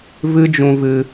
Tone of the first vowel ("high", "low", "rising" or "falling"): high